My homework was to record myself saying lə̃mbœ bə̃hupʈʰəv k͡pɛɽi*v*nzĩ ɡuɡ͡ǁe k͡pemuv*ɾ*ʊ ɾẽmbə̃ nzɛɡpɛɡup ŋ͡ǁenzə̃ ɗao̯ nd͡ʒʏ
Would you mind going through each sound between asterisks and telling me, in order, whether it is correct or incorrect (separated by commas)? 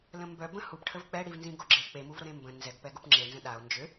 correct, correct